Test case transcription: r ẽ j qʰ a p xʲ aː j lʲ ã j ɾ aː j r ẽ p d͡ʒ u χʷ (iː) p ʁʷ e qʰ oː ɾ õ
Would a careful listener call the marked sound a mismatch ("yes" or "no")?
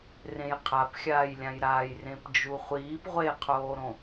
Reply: no